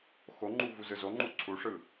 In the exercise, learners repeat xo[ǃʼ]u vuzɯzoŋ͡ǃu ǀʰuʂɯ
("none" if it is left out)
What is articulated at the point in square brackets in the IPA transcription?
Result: ŋ͡ǃ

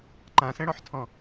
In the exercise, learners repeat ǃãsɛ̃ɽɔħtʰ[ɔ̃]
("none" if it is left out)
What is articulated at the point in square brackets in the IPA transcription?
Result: ɔ̃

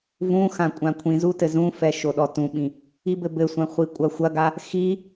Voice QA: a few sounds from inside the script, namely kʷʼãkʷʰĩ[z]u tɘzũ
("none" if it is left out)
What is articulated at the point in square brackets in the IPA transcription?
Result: z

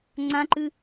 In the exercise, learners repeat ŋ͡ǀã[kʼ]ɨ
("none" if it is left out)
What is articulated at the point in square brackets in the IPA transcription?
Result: ǃ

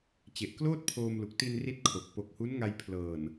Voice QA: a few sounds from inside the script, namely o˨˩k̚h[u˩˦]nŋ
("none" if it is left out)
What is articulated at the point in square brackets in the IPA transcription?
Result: u˦˥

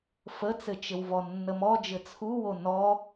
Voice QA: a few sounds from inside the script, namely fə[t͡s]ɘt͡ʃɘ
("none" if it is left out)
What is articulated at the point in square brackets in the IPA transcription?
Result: t͡s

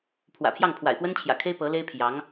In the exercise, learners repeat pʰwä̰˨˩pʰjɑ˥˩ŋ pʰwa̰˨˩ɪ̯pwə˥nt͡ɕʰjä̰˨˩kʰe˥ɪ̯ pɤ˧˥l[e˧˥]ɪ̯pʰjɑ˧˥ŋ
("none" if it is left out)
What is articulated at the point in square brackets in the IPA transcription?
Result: e˥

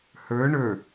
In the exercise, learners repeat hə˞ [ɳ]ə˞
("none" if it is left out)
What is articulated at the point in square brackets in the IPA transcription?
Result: ɳ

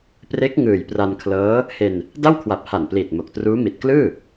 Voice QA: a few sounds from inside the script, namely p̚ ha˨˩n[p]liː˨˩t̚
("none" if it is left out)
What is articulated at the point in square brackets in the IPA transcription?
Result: p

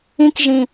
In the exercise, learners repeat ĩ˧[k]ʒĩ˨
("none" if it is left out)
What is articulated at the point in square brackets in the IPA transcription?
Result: k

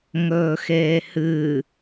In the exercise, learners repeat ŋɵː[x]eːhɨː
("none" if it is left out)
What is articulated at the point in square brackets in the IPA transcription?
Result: x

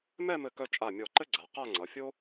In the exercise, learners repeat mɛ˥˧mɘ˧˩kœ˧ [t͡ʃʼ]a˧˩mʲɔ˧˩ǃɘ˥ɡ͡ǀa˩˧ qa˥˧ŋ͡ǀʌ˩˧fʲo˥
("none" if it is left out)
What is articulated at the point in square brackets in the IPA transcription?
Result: t͡ʃʼ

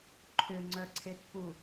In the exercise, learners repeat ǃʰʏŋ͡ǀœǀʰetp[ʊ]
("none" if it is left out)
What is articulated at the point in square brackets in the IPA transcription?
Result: u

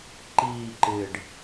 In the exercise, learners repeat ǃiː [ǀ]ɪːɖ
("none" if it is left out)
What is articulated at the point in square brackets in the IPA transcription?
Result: ǃ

